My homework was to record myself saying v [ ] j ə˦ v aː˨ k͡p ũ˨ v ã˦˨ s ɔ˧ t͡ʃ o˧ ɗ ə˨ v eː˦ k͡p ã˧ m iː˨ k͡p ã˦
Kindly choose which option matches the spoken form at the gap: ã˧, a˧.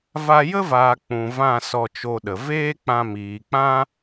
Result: a˧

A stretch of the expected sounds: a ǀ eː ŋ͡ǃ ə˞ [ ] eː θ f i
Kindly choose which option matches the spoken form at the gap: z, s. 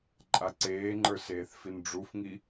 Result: s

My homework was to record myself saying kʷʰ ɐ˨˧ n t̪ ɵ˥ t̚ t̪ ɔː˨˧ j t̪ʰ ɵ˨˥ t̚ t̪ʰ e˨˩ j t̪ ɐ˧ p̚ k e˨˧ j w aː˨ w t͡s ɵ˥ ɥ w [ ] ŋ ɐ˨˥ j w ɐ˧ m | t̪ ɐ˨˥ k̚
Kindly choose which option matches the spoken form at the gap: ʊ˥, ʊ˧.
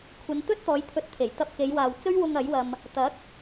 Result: ʊ˧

